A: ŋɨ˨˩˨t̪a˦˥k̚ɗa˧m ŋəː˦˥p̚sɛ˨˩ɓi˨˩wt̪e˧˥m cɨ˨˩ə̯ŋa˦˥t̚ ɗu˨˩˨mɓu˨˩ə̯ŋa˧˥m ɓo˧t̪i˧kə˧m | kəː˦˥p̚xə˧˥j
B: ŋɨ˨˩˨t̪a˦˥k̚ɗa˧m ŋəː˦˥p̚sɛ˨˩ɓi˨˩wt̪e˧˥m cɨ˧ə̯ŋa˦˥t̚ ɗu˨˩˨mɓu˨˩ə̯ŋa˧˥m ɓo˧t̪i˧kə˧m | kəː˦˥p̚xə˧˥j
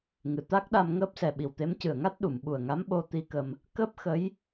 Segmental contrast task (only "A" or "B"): A